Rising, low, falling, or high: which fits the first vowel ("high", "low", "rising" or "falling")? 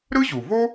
high